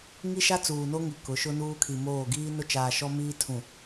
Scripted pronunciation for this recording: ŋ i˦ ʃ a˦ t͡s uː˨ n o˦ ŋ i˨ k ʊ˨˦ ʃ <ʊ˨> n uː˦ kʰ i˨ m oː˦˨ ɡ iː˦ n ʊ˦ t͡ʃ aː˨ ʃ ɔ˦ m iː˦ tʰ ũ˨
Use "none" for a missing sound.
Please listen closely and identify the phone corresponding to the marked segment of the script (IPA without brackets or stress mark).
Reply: ʊ˦